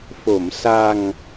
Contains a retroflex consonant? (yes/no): no